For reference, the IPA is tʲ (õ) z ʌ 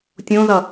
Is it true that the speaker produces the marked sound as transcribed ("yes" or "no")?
yes